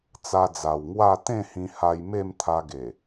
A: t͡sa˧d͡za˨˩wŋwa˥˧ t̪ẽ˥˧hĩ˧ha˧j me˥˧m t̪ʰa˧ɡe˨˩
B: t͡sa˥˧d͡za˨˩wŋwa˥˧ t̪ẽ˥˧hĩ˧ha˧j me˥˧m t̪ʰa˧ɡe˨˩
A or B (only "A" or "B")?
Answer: A